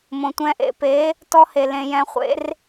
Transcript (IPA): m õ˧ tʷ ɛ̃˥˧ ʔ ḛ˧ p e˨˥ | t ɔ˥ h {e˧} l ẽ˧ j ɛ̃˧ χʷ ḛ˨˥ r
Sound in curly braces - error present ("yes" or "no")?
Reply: no